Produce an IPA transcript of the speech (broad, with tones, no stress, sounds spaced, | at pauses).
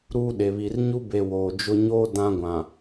ɾ uː˦ ɗ e˨ β i˨ r ɲ u˦ b e˨ w oː˨ d͡ʒ ʊ˦ ɲ oː˦ d ã˦ ɡʷ ã˨